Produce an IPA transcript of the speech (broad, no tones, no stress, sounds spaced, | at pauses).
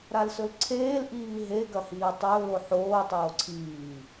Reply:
ɾ a l s ɵ l ǀʰ eː l ʔ iː ɦ e ɡ ɐ h iː tˤ ɵː l o ħ oː tˤ oː ǀʰ iː